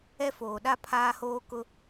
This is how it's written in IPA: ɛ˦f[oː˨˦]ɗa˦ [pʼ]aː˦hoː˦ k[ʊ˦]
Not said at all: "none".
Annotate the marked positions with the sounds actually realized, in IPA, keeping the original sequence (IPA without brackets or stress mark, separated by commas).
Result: oː˨, pʰ, ʊ˦